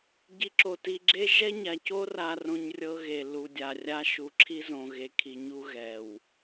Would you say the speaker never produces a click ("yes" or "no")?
no